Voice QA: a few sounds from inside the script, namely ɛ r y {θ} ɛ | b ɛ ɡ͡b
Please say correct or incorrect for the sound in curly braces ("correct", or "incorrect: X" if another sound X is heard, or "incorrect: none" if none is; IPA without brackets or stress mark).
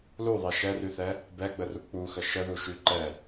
correct